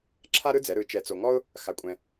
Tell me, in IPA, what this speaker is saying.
ǁʰ a˥ ɾ ɯ˥ d͡z ɛ˩˥ ɾ ɯ˩˥ t͡ʃ ɛ˨ t͡s o˨ ŋ ɔ˥ ʊ̯ | x a˨ kʷʼ ɛ̃˨

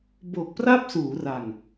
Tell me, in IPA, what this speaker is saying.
b o˨˩ k̚ p r a˥˩ p̚ s uː˩˦ r a˨˩ ŋ

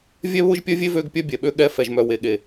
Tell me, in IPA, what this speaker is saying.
vʲ ɛ˦ β ʊ˦ ʒ pʲ œ˦ vʲ e˦ v ø˦ ɡ pʲ œ˦ bʲ ɛ˨ ɓ ø˦ ɠ ɛ˦ f ɛ˨ ʒ m œ˨ w e˨ ɠ e˨

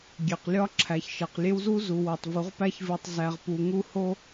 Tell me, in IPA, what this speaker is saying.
ɡʲ e˨ q lʲ ɒ˦ ǁʰ æ˨ ç ʃ e˨ q lʲ e˦ w z u˦ z u˨ w o˨ tˤ v u˨˦ ʁ p æ˦ ç v i˨ tˤ z æ˨ ʁ p u˨ ŋ u˦ h o˦

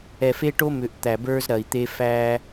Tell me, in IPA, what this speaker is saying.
ɛ˨ f e˦ ʈ o˦ m ʏ˨ ʔ t̪ æ˨ b ə˞˦ z ɾ ɐ˨ i̯ t̪ e˦ f æ˦

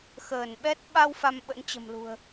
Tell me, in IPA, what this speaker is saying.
x əː˧˩ n ɓ ɛ˦˥ t̚ ɓ a˧ w f a˧ m ɓ ə̰˧˥ n t͡ɕ ə̤˨˩ m l ṳ˨˩ ə̯

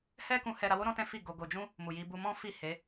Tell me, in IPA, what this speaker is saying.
h ɛ˦ k ũ˧ h ɛ˧ ɾ a˧ w o˦ ɾ ɔ̃˦ t ɛ̃˦ f i˦˨ ɡ o˧ ɡ o˧ d͡ʒ ũ˦ | m u˨ j i˧ b u˧ m ɔ̃˦ f i˦˨ h e˨˦

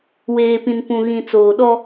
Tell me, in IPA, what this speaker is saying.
w eː˨ p ĩ˨ n p ũ˨ ɣ ĩ˨ t͡s oː˨ ɗ ɔ˦

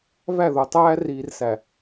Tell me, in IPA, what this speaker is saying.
v æ˦˨ ð o˨ tˤ æː˦ r iː˨ r s æ˨

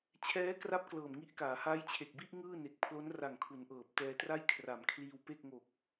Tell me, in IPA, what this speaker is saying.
t͡ɕʰ ɛː˦˥ k r a˦˥ p̚ k l ɤː˨˩ m ŋ i˥˩ ʔ k aː˩˦ h aː˦˥ j t͡ɕʰ e˨˩ k̚ b i˥˩ ʔ ŋ ɯː˥˩ n e˨˩ k̚ pʰ l o˦˥ n r a˨˩ ŋ kʰ u˩˦ n ʔ ɤː˨˩ p̚ t ɛː˧ t r a˥˩ j kʰ r a˨˩ m kʰ l iː˧ w p e˥˩ k̚ ŋ o˨˩ k̚

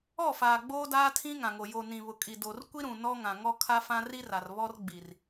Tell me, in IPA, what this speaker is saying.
ɔ˦˨ f aː˨ ɡ͡b oː˦ d aː˦ tʰ ĩ˦ ŋ ã˨ ŋ o˨ j o˨ n ĩ˨ β ʊ˨ kʼ i˨ d o˨ r kʷ i˦ ɾ ũ˨ n ɔ˦ ŋ ã˨ ŋ ɔ˦ kʰ a˦ f ã˦ r i˦ r a˨ r β ɔ˦ r ɡ͡b i˨ r

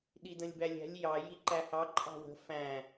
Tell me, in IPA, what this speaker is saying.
ɗ i d ə̃ lʲ b æ lʲ æ̤ lʲ j ɑ j i ǃ æ h ɑ ǃʼ ɑ̤ w ə̤ f æ̃

